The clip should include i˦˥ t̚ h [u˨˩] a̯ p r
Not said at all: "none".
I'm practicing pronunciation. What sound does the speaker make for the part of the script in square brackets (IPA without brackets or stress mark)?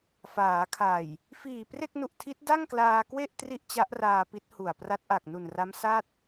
u˨˩